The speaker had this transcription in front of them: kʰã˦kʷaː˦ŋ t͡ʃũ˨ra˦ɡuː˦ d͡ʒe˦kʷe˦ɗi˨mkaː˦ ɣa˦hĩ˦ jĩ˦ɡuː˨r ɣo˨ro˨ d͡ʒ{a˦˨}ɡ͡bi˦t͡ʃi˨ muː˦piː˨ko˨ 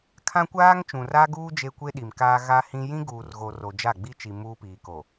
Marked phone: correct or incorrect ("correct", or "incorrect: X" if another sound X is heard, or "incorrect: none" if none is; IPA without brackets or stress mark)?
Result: correct